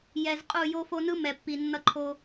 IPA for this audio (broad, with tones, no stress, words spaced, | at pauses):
jɛ˨z qʼu˦˨jo˦fo˦ nɯ˦mɛ˨pːi˨ nːʌ˦ǃʰo˦